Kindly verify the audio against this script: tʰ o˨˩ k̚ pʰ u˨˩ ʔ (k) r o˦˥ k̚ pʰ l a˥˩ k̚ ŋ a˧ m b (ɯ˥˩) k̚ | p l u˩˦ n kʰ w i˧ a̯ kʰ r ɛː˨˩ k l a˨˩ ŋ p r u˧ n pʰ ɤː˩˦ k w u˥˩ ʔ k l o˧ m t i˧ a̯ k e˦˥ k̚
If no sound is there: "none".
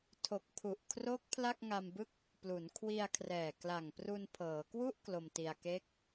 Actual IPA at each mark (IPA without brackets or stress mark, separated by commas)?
kʰ, ɯ˥˩